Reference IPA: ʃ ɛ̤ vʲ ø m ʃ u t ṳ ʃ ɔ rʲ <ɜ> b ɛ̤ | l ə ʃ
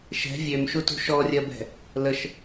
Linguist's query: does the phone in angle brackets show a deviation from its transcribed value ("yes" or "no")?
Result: no